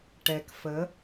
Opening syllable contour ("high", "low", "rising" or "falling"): low